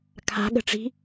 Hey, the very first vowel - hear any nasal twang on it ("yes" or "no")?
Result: no